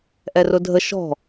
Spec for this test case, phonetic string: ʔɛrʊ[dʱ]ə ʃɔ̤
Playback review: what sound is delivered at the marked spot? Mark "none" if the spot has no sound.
dʱ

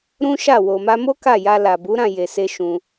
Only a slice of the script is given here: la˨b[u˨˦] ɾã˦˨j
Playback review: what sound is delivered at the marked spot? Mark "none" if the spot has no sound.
u˨˦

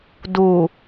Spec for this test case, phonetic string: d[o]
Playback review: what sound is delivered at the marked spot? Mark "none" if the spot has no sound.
u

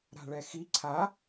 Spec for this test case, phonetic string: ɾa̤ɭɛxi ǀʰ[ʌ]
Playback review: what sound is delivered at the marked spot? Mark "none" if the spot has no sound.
a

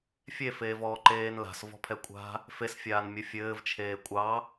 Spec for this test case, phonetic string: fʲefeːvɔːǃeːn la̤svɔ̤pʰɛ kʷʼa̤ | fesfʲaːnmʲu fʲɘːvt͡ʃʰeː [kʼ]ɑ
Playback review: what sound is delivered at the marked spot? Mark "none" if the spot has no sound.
kʷʼ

